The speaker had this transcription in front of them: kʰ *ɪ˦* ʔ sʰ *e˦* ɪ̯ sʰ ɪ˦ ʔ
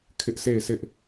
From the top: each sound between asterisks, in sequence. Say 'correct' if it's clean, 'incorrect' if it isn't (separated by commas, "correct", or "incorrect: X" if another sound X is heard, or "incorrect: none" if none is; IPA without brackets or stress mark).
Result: correct, incorrect: e˦˨